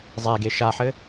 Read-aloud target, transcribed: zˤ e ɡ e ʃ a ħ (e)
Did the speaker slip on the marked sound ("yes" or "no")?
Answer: yes